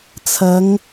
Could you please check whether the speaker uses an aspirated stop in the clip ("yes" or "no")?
yes